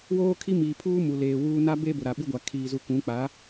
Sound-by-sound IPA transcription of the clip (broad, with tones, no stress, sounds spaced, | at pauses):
w oː˦ kʰ i˦ m iː˨ pʰ uː˦ m u˨ l eː˨ w uː˦ n a˦ b e˦ b ʊ˨ ɾ a˨ ɓ i˦ ɡʷ a˨ kʰ iː˨ z u˨ k ũ˨˦ k͡p a˨˦